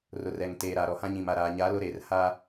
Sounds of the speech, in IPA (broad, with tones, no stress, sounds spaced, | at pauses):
r ʊ˨ r ɛ˨ ŋ t eː˨ ɾ a˨ ɾ ɔ˨ h ã˦ ɲ ĩ˨ m a˨ ɾ aː˨ ɲ a˨˦ l ʊ˦ ɾ eː˨ r h a˦